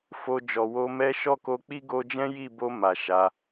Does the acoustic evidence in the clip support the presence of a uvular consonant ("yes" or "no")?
no